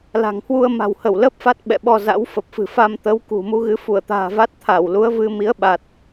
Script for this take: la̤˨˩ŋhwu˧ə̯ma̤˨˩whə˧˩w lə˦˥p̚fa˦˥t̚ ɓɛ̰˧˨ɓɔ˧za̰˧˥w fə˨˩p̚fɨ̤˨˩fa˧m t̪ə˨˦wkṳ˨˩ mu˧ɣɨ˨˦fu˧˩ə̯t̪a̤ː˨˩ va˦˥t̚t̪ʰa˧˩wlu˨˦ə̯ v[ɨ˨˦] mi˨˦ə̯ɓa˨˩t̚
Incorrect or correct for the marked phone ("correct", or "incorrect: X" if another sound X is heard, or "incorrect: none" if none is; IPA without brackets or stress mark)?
incorrect: ɨ˧